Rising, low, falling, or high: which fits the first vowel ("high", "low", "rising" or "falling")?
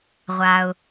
low